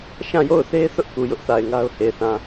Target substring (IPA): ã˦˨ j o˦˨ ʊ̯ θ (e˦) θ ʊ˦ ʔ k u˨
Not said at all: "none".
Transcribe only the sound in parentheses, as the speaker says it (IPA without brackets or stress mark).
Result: e˦